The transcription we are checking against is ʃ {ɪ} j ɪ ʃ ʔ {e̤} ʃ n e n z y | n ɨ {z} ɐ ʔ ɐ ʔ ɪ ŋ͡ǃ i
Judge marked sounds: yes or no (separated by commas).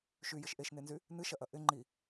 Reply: no, no, no